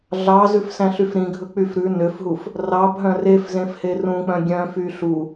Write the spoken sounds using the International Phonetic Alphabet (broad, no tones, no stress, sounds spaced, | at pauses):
ɮ ɑ z ʉ f s æ̃ ɬ y f ɾ ĩ ɡʱ ɵ k͡p y f ɾ ʉ n ø f ɦ u f | r ɑ b ɦ œ̃ r e f z ẽ f h e r ũ k͡p œ̃ ɡʲ œ̃ f y ɬ u